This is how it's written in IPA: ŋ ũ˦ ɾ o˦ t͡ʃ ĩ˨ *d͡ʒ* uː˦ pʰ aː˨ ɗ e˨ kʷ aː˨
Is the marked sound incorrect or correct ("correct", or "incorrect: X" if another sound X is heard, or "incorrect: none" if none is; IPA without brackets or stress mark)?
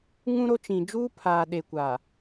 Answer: correct